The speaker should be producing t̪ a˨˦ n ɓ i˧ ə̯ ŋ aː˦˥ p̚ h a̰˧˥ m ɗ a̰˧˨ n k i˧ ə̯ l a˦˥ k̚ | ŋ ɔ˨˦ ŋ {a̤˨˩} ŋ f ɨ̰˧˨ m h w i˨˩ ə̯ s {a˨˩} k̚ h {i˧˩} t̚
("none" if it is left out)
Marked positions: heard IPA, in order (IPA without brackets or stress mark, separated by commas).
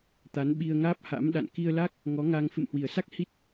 a˧, a˦˥, i˦˥